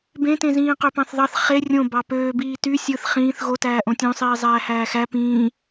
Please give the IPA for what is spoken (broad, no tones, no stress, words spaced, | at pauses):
bẽtẽzĩː qøpɑ̃θðˤɑθ χe rʲõ bɑpøːbiː ty sʲɯθ χĩːθ ɣotæː ʔõtʲõsˤiː zˤæːhæːxæ pĩː